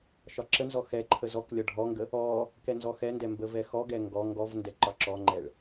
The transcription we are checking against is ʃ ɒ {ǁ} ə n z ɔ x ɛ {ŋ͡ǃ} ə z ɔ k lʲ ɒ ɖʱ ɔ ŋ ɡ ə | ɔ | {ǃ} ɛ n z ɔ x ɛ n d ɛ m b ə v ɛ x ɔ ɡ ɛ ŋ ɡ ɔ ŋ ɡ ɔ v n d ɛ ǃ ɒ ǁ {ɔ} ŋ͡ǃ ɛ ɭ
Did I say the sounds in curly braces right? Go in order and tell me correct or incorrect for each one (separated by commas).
correct, incorrect, incorrect, correct